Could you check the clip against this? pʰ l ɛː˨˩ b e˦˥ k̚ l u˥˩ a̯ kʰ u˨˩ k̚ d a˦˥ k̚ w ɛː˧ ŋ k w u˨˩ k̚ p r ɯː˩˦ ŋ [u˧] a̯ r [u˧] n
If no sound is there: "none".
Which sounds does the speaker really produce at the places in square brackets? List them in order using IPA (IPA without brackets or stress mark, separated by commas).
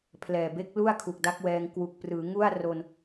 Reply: u˥˩, o˧